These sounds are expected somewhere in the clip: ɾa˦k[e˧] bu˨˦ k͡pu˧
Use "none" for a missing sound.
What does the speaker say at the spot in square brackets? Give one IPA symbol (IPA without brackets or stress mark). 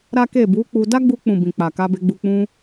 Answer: e˦˨